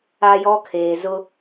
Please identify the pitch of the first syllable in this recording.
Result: high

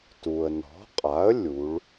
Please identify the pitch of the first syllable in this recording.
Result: low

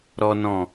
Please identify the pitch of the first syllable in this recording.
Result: high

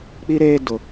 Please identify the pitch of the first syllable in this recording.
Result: high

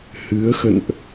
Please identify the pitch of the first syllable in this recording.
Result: rising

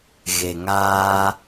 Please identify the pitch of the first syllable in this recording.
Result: low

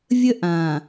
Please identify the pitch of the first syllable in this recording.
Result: high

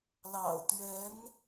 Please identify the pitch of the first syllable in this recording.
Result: low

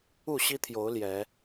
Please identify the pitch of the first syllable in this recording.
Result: falling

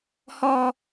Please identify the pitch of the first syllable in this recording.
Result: high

